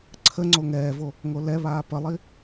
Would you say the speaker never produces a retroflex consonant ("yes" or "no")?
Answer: yes